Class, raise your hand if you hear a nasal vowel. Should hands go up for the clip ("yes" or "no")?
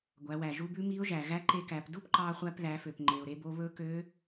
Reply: no